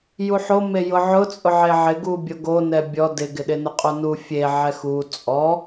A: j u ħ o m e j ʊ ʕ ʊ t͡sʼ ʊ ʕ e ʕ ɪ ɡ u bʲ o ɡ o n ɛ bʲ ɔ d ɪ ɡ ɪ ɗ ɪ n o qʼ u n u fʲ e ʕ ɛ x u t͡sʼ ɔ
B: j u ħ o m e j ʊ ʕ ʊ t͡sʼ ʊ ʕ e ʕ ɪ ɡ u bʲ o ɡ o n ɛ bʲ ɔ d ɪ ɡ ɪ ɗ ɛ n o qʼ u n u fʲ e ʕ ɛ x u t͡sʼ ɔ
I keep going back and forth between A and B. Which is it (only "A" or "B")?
A